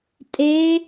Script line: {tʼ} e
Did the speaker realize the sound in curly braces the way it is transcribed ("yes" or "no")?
yes